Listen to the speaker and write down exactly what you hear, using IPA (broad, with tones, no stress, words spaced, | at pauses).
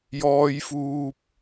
jɔː˥jfuː˥p̚